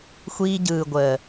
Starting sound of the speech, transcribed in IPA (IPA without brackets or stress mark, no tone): xʷ